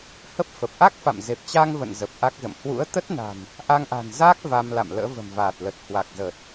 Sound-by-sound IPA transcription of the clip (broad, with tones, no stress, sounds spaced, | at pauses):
h ə˦˥ p̚ f ə˨˩ p̚ ʔ a˦˥ k̚ f a̰˧˨ m z e˨˩ p̚ t͡ɕ aː˧ ŋ v ə̰˧˨ n z ə˨˩ p̚ ʔ a˦˥ k̚ z ə̰˧˨ m h w ṵ˧˥ ə̯ t̪ ə˦˥ t̚ n a̤˨˩ n | ʔ a˧ ŋ ʔ a̤˨˩ n z aː˦˥ k̚ v a˧ m l a̰˧˨ m l ə̰ː˧˥ v ə̤˨˩ m v aː˨˩ t̚ l ə˨˩ t̚ h w a˨˩ k̚ z əː˨˩ t̚